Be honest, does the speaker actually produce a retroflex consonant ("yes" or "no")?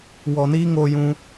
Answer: no